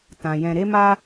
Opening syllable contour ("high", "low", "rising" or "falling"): low